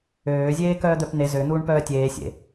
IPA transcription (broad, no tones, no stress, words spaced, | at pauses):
øːzʲeː kœːd̪œpn̪e zøn̪uːɳ pœːtʲeː sʲḛ